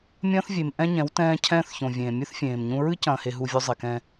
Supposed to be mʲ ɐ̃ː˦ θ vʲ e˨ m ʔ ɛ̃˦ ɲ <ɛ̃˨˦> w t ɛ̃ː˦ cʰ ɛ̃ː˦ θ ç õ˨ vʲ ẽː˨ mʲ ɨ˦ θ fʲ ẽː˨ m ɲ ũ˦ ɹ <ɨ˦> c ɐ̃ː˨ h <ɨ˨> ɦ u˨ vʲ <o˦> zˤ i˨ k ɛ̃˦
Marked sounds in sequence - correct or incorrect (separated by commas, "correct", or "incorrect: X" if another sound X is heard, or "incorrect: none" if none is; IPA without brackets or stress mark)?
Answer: correct, correct, incorrect: e˨, correct